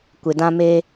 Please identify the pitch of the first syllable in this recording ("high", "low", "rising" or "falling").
low